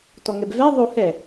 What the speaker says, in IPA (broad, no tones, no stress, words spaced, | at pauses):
tɔŋɛbvɛ ðˤo hɛ